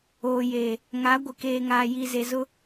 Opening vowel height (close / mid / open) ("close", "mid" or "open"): mid